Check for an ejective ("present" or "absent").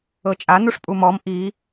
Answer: present